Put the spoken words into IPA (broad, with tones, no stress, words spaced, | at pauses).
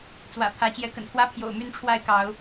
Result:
t͡swä̰˨˩pʰä˨˦ t͡ɕjɛ˨˦kə̰˨˩nt̪ʰwä˦ pʰjo̰˨˩ʊ̯my˥˨nʈ͡ʂʰwa˥˨ɪ̯kɑ˨˦ʊ̯